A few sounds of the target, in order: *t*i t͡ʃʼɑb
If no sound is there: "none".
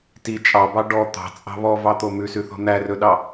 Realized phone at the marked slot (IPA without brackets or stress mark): t